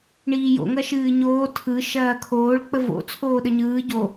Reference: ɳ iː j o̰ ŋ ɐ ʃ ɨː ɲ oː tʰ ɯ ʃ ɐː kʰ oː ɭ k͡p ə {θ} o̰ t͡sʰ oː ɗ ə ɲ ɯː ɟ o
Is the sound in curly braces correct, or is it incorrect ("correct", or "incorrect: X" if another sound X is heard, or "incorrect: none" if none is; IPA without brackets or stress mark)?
incorrect: v